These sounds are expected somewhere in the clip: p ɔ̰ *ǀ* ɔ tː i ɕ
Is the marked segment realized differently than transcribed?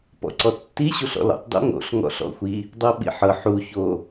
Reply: no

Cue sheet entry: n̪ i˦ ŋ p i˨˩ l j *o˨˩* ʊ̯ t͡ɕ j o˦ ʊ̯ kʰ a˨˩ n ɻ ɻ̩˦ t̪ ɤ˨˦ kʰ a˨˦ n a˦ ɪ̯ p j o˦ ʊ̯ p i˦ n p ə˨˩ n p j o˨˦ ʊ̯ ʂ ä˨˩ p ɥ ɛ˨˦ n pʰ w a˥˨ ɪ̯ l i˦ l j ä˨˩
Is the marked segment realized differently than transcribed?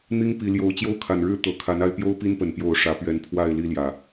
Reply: yes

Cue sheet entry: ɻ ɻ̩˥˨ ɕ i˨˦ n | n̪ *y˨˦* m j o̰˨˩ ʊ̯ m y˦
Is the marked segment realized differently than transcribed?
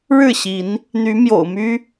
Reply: no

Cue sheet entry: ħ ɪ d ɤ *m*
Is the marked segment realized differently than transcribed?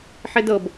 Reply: yes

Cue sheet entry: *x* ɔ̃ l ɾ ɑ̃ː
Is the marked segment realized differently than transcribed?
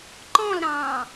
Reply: yes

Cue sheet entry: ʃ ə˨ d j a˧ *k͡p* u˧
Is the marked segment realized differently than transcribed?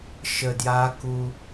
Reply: yes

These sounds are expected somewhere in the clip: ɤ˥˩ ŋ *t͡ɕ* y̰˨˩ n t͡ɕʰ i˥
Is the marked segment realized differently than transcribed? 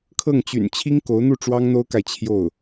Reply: no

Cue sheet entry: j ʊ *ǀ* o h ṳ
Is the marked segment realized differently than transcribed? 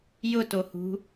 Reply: yes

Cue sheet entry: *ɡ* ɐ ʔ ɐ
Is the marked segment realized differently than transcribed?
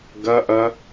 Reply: no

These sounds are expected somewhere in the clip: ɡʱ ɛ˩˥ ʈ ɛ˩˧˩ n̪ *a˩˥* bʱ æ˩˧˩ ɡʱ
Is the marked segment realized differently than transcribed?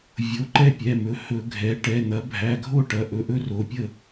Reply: yes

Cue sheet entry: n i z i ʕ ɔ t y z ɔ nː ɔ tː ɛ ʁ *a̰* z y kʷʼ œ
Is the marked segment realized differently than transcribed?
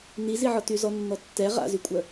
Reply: no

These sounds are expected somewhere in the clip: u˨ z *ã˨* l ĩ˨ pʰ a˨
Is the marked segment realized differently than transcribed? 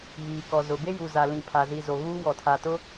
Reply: yes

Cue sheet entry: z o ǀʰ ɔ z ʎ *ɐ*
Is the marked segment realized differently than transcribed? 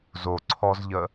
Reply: yes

